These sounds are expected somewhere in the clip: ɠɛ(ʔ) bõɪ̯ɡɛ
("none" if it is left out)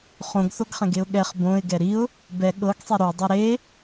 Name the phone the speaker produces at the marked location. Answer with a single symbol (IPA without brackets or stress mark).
χ